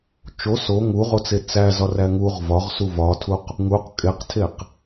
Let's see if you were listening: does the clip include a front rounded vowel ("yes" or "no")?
no